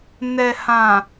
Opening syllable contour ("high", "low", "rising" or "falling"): low